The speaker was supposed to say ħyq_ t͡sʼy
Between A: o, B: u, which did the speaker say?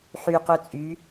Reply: B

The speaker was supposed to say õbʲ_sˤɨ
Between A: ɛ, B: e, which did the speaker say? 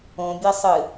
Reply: A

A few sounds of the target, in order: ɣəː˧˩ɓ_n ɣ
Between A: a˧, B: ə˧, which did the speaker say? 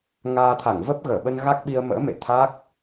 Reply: B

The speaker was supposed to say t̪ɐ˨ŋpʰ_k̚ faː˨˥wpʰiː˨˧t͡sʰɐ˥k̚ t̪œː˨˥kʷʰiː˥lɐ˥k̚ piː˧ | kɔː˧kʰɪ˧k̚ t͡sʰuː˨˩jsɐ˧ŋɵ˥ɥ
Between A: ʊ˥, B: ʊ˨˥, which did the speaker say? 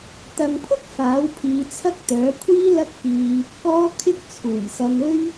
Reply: A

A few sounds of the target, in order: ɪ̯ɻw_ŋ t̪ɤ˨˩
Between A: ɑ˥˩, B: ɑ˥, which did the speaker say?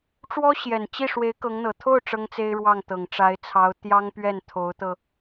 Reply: A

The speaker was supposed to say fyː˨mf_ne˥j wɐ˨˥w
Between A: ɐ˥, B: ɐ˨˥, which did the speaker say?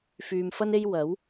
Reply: A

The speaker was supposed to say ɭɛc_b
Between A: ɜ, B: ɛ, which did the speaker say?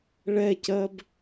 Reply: A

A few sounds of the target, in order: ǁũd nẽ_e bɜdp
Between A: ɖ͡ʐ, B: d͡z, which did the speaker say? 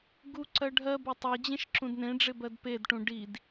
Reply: A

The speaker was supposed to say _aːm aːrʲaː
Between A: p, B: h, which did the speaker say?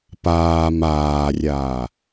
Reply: A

